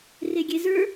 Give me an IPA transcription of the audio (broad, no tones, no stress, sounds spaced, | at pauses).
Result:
r e ɡʲ e z ə˞